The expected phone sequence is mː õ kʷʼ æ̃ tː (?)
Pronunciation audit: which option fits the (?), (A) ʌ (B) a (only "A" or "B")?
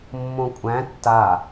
B